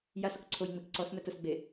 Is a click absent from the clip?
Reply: no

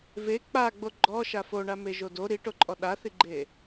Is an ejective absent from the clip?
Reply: no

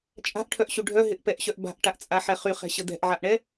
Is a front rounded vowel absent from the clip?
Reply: no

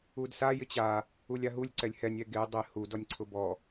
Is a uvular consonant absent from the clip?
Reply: yes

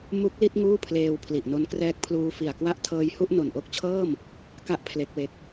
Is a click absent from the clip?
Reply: yes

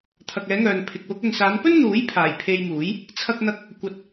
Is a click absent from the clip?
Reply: yes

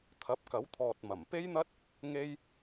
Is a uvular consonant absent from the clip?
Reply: yes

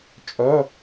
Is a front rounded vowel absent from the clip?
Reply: no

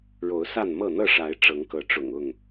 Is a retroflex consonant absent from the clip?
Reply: no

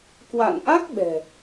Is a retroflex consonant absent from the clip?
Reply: yes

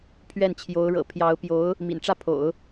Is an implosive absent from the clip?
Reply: yes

